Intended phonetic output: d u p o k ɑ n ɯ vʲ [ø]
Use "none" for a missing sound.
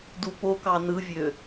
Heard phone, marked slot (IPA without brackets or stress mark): ø